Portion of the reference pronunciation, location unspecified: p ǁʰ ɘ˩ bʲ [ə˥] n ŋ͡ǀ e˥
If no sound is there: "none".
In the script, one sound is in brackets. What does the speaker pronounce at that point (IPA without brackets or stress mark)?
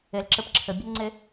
ə˥